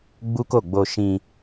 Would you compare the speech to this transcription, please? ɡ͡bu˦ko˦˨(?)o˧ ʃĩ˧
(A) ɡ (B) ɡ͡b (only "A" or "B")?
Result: B